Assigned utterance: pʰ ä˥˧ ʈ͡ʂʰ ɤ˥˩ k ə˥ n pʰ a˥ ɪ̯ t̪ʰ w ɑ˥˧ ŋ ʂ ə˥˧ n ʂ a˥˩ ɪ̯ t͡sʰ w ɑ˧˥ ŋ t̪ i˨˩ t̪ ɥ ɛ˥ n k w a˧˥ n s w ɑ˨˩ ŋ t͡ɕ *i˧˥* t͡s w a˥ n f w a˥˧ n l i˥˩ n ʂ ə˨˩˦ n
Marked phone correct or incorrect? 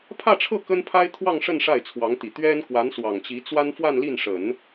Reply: correct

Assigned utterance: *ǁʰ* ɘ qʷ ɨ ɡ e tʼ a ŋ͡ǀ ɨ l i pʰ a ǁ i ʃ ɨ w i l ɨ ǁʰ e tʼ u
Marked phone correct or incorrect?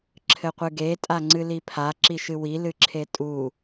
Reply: correct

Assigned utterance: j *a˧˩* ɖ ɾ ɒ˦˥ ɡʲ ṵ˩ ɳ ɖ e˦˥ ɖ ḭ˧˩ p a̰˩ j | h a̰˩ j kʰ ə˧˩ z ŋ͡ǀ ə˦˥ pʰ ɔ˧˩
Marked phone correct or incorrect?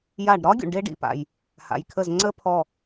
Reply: correct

